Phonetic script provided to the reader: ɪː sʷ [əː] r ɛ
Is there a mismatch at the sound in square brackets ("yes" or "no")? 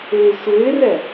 yes